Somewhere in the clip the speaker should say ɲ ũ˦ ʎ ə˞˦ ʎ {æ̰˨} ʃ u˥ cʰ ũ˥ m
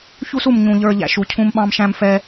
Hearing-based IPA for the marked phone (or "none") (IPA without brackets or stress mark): æ̰˦